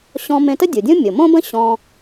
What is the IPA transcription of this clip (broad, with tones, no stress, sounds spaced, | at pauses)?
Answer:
ɕ ɔ̃˧ m ẽ˧ t ə˥ dʲ u˩ dʲ õ˥ mʲ o˩ m õ˥ b ə̃˥ ɕ ɔ̃˧